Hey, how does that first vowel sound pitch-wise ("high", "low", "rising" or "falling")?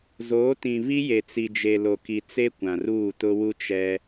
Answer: rising